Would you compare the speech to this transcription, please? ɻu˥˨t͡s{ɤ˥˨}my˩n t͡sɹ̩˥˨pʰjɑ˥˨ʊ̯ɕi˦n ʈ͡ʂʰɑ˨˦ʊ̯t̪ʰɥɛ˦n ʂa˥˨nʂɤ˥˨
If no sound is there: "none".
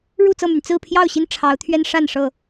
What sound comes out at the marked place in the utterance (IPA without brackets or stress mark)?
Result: ɤ˥˨